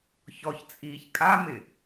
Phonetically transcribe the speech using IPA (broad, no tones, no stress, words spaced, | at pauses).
çɔçt͡sʼiːç kʼamɪ